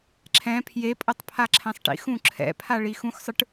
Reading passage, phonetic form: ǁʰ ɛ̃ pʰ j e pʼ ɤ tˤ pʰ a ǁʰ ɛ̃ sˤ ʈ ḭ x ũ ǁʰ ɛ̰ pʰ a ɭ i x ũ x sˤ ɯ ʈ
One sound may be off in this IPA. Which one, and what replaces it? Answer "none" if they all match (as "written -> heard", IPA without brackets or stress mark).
none